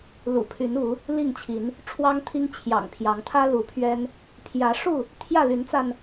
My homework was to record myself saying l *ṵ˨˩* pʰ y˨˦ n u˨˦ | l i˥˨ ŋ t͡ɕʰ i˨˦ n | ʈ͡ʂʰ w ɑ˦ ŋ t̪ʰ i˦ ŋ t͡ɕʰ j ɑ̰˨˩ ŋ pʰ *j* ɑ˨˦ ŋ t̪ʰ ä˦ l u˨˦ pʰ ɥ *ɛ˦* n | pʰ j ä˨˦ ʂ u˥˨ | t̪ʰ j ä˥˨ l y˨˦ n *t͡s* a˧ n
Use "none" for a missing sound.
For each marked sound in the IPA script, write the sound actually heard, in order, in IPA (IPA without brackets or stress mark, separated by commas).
ṵ˨˩, j, ɛ˦, t͡s